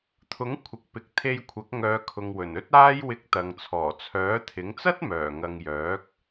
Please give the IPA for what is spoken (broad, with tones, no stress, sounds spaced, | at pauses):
t̪ʰ ʊ˨˥ ŋ kʷʰ ɪ˨ k̚ p ɪ˨ k̚ t̪ʰ e˧ j kʷʰ ɐ˨˥ k̚ ŋ œː˨˧ kʰ ʊ˨ ŋ w ɵ˨˩ n ɵ˥ t̚ aː˥ j w ɪ˧ k̚ t̪ ɐ˨ ŋ t͡sʰ ɔː˨˩ t͡sʰ œː˨˥ t̪ʰ ɪ˨˥ ŋ t͡s ɐ˥ t̚ m œː˨˩ ŋ ɐ˨ ŋ j œː˨˥ k̚